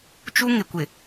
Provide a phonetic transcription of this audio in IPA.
t͡ʃu˦ŋɪ˨kʷɪ˨

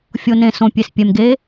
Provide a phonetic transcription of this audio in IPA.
fʲo˩nẽ˩ sõ˩pʲe˩s pʲɛ˩mɡe˩˧

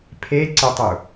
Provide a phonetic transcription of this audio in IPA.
pʰeǀɪtˤu

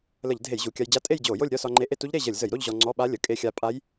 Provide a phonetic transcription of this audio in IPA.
lə˧˩˧ʎ dʱe˧˩˧jʑu˩˧˩kʲa˧jd͡ʑa˧˥˧ tʼe˥˧jd͡ʑo˧˩˧jo˥˧lʲ ɾʲɒ˥˧sɒ˧ŋ͡ǃe˧ ʔe˥˧tu˦˥ʎɾe˥˧ ʑə˧˩˧lʲzə˧˩˧jɾo˥˧ʎ ʑɔ˧ŋ͡ǀɔ˧˥˧ɓa˦˥lʲə˩˧˩ kʼe˧xʲa˧pʼa˦˥j

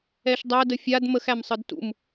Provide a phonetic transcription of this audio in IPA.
ɛʃdˤæ dəfʲad məxæmsˤɯd tṵm

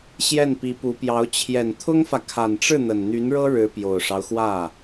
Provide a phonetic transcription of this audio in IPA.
ɕjɛ˥˩npi˧˥pu˧˥pjɑ˧˥ʊ̯ t͡ɕʰjɛ˨˩nt̪ʰʊ˥ŋfä˨ kʰa˨˩nʈ͡ʂɻ̩˥˩ n̪ə˨˩nn̪y˧˥nɻɤ˥ ɻɻ̩˧˥ pjo˨˩ʊ̯ʂɑ˦ʊ̯xwä˥˩

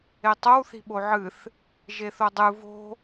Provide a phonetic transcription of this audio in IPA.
etˤow θi̤ɓoʕɨθ | ʒeθodˤɨ vo̤

